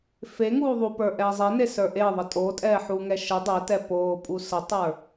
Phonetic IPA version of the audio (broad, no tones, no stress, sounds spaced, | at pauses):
f e ŋ uː ðˤ u p ə˞ ʔ ɛː zˤ e n e s ə˞ ʔ e ðˤ ə tʼ o tʼ ɛː ħ uː ŋ ɛ ʃ ə dˤ ɛ t ɛ p oː pʼ u s ə tˤ ə˞